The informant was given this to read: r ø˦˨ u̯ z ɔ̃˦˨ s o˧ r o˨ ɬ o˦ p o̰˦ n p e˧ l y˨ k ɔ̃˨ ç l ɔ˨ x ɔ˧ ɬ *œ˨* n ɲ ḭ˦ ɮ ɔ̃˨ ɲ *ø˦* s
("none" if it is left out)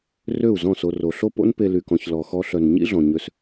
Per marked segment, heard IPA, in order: œ˨, ø˧

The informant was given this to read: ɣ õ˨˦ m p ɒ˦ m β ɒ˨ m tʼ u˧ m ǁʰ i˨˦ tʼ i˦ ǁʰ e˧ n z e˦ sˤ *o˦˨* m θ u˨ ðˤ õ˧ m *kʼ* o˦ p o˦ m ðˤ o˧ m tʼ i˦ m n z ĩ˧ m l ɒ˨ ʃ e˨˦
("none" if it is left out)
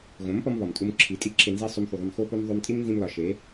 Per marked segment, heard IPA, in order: o˧, x

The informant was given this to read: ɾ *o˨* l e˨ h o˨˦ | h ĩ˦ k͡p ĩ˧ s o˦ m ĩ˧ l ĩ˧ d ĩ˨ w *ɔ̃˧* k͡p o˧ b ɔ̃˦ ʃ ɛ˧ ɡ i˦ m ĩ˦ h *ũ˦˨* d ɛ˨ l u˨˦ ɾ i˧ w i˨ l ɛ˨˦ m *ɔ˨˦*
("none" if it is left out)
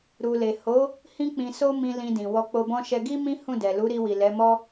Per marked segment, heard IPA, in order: u˨, ɔ˧, ũ˦˨, ɔ˦

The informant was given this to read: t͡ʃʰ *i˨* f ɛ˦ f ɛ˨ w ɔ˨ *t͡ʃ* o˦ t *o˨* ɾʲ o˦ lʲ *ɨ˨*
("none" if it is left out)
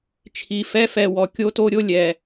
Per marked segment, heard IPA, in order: i˨, kʲ, o˦, ɛ˨

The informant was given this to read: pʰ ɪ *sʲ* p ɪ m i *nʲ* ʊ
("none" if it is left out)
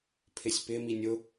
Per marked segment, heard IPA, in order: sʲ, nʲ

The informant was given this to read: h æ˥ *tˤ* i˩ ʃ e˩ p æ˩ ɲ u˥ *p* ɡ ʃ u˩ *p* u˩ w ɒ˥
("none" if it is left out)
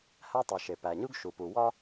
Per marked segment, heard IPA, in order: tˤ, none, p

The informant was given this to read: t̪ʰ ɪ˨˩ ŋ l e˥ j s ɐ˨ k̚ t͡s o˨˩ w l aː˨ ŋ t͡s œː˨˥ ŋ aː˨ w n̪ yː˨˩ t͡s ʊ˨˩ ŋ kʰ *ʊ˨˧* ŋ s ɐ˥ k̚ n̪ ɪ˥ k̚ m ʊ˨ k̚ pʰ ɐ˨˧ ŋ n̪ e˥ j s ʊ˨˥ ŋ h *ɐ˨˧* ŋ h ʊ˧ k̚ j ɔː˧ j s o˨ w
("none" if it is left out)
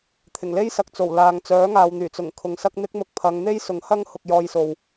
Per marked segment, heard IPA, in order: ʊ˨˧, ɐ˥

